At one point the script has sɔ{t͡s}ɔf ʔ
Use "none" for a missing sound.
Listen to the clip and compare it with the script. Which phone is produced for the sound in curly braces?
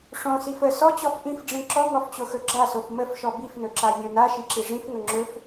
t͡ɕ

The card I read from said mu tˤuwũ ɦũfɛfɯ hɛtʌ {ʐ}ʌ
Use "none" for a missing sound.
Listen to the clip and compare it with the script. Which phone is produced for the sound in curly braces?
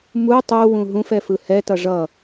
ʐ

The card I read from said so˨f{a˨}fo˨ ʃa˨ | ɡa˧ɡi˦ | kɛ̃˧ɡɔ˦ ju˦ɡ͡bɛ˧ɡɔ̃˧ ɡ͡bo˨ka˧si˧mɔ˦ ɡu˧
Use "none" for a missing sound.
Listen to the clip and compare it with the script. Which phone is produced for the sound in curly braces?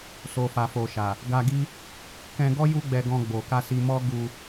a˨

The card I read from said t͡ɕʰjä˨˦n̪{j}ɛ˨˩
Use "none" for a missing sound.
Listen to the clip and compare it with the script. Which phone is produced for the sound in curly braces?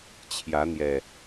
j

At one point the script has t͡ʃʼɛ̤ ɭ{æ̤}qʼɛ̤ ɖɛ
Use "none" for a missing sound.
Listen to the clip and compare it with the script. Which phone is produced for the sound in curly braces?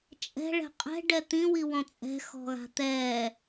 ɛ̤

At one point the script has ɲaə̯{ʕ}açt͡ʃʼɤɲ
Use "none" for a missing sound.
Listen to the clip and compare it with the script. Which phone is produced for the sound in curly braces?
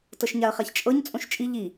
χ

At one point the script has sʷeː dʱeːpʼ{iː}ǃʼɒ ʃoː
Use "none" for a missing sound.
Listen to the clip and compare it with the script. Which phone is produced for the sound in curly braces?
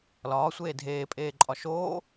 eː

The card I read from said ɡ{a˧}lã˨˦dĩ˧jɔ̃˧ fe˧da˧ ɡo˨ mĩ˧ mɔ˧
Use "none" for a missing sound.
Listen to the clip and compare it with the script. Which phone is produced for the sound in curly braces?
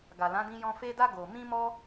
a˨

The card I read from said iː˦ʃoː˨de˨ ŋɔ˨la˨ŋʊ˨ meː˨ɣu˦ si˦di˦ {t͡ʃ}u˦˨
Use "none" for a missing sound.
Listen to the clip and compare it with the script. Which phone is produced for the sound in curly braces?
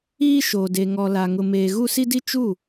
t͡ʃ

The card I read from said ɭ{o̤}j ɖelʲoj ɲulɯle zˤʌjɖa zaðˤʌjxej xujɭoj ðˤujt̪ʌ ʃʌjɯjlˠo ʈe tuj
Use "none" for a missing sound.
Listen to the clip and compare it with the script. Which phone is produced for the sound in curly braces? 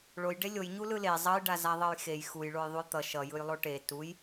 o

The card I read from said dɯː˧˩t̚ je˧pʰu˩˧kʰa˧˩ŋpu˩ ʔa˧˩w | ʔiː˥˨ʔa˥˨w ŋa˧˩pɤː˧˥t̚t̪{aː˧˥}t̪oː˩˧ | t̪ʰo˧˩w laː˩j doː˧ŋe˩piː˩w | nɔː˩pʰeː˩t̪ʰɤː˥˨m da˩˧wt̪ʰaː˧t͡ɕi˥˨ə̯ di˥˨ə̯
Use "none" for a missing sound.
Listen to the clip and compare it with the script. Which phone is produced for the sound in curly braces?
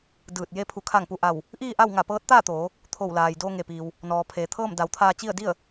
aː˥˨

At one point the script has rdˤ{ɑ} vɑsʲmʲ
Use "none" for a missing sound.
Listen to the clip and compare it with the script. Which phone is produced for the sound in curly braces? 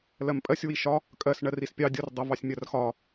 ʌ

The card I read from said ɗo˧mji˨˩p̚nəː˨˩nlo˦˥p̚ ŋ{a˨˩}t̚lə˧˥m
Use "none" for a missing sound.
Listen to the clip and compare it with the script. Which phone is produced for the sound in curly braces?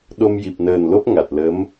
a˨˩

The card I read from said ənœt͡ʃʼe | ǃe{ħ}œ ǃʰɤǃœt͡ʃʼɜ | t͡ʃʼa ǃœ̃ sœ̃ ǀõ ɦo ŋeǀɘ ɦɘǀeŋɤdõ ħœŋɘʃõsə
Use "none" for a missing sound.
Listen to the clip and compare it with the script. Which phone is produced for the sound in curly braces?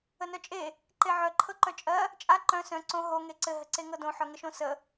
ʕ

